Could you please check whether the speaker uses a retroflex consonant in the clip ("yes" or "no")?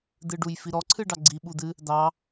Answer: yes